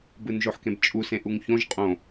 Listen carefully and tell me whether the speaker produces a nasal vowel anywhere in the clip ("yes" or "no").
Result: yes